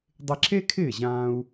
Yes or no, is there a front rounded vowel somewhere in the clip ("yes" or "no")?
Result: no